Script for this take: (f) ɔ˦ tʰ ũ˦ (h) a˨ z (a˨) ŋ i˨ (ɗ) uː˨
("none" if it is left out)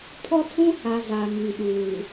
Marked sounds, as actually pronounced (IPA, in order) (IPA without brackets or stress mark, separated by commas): pʰ, h, a˨, ɗ